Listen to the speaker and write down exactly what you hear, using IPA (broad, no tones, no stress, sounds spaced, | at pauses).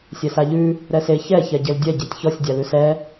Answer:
sʲ ɛ s a ʎ ʉ | ɾ ɛ s e ç ɛ ç ɛ ɟ e l dʲ ɛ ɟ e tʲ ç ɔ sʲ dʲ a l ʉ s ɛ